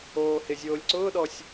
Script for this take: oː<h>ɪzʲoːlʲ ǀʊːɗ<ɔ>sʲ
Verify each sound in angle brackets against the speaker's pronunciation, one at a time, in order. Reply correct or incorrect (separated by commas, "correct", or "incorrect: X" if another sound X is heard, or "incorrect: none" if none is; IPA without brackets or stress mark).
correct, correct